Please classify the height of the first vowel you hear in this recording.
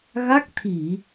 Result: low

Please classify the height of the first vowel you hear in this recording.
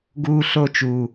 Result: high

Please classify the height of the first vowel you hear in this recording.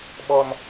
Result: mid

